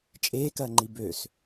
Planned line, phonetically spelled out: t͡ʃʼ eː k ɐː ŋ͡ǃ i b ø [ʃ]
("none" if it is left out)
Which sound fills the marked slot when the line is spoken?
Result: s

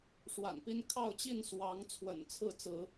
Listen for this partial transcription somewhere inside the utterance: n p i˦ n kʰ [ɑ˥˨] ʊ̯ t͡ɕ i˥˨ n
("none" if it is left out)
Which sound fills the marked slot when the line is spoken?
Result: ɑ˥˨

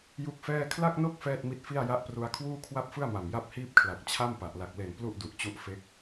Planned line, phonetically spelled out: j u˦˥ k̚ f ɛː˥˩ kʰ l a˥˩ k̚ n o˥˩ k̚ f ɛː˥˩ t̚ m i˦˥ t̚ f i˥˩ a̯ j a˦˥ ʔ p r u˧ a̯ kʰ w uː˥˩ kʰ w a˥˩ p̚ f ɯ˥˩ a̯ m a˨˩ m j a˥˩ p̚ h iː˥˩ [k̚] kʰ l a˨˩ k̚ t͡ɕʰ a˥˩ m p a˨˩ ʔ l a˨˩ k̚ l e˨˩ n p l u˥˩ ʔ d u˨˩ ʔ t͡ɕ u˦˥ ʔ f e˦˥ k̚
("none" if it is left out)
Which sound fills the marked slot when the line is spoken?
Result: p̚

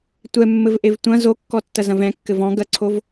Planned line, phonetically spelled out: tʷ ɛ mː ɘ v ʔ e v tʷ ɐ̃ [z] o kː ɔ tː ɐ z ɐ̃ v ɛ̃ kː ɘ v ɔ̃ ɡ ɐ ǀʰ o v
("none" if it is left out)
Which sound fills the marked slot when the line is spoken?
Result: z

